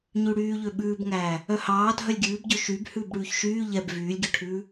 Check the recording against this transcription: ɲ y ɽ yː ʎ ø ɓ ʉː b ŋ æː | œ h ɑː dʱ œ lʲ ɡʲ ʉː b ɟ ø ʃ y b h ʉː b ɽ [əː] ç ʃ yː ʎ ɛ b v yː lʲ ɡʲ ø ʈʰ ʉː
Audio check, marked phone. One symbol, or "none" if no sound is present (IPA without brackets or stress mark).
ʉː